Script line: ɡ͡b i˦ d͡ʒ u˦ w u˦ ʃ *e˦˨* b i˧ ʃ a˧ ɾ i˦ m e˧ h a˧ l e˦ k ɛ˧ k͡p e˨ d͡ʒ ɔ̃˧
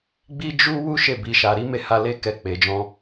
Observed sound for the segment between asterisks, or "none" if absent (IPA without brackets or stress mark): e˦˨